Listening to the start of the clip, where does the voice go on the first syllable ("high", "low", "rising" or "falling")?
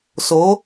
rising